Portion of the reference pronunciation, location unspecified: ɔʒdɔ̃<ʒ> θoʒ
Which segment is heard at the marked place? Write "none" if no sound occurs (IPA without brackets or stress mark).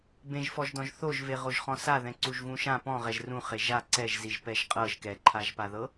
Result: ʒ